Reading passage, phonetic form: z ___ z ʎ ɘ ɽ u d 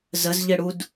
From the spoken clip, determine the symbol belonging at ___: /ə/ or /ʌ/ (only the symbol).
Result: ə